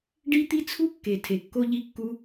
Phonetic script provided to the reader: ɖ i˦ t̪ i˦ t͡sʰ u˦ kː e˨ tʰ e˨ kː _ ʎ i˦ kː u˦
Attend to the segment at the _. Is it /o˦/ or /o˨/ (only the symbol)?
o˦